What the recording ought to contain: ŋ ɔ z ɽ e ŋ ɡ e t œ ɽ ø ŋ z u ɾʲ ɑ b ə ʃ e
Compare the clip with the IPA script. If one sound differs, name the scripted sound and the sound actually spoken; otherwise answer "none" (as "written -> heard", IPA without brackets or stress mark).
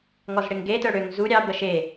none